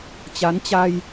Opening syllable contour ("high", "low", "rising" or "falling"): rising